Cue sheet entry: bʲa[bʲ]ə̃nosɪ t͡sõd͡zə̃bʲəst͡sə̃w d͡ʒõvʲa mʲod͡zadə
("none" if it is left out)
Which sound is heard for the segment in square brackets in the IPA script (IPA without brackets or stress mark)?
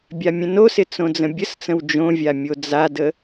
mʲ